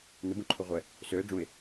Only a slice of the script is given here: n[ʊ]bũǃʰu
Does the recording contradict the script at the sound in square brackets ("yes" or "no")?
no